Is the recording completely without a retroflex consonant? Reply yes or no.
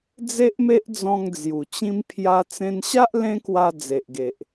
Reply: yes